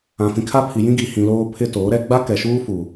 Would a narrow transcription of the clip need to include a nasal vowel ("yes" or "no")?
yes